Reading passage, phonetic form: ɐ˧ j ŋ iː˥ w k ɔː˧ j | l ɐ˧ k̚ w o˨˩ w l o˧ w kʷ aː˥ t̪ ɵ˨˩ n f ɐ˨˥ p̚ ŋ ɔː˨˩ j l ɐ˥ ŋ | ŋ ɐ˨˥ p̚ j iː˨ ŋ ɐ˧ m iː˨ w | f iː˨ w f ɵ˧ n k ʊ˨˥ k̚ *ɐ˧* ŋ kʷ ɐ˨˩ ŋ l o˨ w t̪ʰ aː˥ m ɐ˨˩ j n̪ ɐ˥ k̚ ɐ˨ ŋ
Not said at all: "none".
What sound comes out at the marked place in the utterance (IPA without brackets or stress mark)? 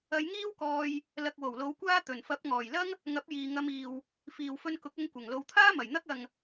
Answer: ɐ˧